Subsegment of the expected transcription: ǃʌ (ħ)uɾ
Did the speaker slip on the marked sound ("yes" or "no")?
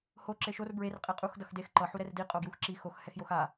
no